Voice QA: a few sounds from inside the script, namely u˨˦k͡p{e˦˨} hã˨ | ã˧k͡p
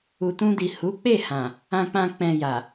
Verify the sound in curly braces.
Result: correct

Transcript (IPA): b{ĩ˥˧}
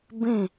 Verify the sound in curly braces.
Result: correct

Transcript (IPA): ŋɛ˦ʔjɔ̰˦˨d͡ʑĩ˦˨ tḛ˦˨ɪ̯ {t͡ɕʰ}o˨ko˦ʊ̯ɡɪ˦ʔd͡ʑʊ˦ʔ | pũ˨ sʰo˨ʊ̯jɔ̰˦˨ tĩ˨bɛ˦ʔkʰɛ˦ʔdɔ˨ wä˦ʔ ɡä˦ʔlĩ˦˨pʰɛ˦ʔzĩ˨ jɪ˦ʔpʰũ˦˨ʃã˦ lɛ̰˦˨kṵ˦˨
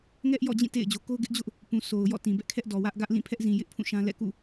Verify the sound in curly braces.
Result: incorrect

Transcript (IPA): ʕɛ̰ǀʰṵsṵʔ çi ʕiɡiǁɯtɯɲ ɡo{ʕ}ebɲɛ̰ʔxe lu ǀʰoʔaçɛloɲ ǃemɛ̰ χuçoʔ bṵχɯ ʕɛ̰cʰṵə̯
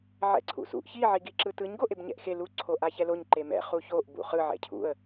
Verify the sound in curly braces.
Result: incorrect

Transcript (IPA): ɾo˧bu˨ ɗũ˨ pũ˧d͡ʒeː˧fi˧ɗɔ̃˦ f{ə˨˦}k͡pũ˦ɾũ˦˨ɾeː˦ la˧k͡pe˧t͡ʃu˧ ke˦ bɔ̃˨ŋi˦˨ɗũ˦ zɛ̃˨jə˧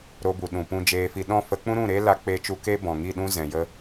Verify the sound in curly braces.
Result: correct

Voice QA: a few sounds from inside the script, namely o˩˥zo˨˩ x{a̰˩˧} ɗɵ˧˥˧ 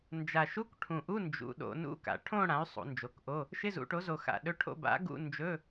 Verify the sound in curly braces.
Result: incorrect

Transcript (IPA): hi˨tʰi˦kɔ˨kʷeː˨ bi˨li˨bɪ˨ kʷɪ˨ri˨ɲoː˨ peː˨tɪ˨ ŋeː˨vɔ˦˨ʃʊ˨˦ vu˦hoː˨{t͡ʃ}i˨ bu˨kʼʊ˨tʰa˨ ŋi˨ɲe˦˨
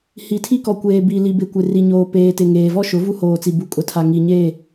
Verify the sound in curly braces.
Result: incorrect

